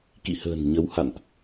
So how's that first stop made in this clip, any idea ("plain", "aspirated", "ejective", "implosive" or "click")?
plain